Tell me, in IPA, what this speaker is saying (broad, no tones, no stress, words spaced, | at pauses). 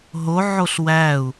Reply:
ɦo ʕoɬwæu̯